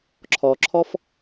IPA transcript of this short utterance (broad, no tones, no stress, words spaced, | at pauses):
ǁʰɔǁʰɔf